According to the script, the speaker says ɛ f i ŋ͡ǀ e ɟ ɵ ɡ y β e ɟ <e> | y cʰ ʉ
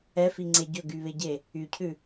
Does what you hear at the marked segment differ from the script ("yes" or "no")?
no